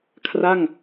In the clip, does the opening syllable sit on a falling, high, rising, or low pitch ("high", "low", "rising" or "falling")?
falling